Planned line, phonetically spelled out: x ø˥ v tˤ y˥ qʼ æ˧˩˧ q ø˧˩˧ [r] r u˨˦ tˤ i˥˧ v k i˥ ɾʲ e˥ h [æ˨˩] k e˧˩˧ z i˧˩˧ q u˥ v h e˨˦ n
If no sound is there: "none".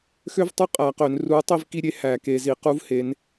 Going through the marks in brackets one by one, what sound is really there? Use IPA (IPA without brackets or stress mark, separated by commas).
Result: n, æ˧˩˧